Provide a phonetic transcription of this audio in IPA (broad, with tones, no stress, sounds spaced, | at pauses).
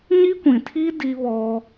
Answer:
ɲ i˦ kʷ ĩ˨ tʰ i˦ d i˦ β ɔ˦